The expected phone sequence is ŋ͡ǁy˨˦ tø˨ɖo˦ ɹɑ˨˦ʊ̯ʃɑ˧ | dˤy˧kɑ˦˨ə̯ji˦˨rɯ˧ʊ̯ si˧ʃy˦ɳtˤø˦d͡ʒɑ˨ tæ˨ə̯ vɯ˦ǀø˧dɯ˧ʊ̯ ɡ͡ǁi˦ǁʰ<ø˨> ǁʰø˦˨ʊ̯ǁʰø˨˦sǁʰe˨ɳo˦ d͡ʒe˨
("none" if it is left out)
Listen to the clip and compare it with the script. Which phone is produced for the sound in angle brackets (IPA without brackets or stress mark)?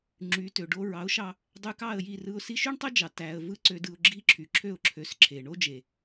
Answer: y˨